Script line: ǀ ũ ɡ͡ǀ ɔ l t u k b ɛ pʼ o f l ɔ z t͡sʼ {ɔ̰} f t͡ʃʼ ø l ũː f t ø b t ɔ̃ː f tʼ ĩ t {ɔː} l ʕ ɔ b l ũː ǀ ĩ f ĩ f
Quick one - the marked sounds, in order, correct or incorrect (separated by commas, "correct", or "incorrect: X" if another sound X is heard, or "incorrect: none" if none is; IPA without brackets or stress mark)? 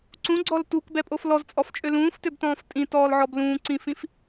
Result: incorrect: ɔ, correct